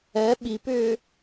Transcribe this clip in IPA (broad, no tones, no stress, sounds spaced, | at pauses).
ɛ ɓ i p ʏː